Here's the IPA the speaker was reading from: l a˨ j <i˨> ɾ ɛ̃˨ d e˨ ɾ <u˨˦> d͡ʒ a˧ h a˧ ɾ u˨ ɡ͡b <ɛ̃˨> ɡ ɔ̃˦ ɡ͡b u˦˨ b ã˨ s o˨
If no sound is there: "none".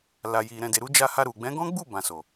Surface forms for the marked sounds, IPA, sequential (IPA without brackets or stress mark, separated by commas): i˨, u˨˦, ɛ̃˨˦